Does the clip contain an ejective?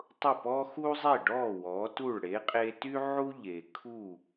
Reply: yes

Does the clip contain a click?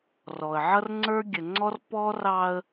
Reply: yes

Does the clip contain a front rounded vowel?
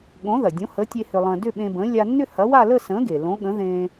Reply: yes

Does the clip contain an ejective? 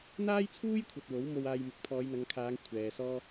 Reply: no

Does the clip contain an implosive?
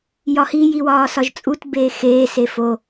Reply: no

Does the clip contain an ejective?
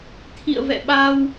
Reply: no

